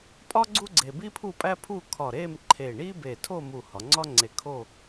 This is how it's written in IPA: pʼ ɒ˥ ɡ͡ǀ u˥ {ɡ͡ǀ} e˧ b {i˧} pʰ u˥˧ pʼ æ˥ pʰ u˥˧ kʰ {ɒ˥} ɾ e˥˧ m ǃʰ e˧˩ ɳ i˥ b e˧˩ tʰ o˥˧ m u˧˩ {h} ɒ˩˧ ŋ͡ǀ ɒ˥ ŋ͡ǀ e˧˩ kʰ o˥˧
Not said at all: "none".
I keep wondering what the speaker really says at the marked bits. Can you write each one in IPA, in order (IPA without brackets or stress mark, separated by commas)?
ɡ͡ǀ, i˥, ɒ˧˩, h